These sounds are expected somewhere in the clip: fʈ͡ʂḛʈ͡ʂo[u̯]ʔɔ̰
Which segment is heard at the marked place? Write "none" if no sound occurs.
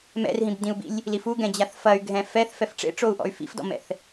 u̯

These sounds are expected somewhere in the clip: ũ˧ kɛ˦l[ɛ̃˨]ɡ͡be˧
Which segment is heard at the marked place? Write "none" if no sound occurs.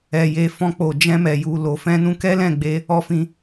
ɛ̃˦˨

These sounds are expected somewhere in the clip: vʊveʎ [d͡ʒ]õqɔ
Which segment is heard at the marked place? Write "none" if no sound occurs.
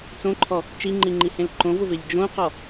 d͡ʒ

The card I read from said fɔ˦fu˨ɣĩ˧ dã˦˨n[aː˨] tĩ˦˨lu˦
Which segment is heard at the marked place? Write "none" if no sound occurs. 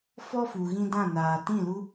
aː˨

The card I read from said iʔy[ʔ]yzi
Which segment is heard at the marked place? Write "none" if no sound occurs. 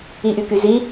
k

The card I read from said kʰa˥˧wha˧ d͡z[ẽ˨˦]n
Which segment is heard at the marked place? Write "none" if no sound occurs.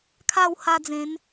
ẽ˨˦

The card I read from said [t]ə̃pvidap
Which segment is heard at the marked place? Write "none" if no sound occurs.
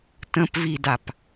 t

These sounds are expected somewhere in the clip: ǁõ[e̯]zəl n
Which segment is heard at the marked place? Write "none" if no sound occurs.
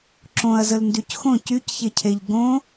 ɐ̯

